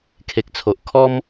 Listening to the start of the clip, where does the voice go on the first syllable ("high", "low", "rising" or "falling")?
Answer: low